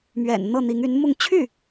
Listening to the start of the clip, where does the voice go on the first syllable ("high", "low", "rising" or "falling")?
low